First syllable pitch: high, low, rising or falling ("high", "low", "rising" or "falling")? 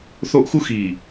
high